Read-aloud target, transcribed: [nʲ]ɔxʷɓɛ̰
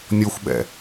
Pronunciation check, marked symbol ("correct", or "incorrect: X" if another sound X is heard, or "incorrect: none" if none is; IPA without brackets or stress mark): correct